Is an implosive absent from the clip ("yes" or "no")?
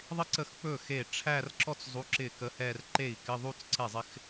yes